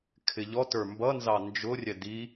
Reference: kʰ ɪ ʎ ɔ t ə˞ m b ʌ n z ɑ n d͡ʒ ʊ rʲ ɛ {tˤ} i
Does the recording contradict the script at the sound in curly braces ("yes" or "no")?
yes